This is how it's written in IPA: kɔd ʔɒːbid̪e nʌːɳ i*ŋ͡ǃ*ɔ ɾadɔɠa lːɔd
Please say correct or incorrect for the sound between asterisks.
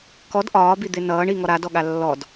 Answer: incorrect